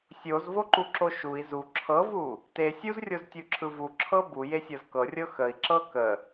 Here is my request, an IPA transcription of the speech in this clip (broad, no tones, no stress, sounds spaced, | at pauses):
sʲ o z v o ǃ u ǁ o ʃ u i̯ z u ǁʰ ɤ v u | t e sʲ u z rʲ o z tʲ u ǁʰ ɯ v u ǁʰ ɤ b u j e sʲ ɤ z k ɤ rʲ ɤ x ə i̯ ǁ ɤ k ə